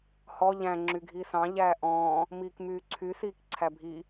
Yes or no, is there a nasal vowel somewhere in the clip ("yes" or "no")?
yes